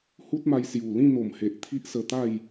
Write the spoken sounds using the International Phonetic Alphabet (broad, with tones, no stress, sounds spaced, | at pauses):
h u˦ t̚ m a˧ j s j u˨˩ l ĩ˥˧ n̪ o˨˩ m h e˨ ʔ t̪ʰ i˦ ʔ s ə˧ t̪ a˥˧ j